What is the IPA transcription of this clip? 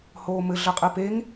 h oː m ɘ ɮ ɐ qʼ ɘ p e ŋ

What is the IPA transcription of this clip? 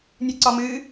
nʲ ɨ ǀ ɒ m ɨ

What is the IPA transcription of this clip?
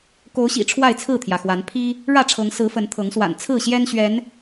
k o˨˦ ʊ̯ ɕ ḭ˨˩ ʈ͡ʂʰ w a˥˨ ɪ̯ t͡sʰ ɹ̩˥˨ t̪ʰ j ä˩ x w a˨˦ n pʰ i˦ | ɻ ä˥˨ ʈ͡ʂʰ ɤ˨˦ ŋ s ɹ̩˨˦ f ə˨˦ n t̪ʰ ɤ˨˦ ŋ s w a̰˨˩ n t͡sʰ ɹ̩˥˨ ɕ j ɛ˦ n ɕ ɥ ɛ˨˦ n

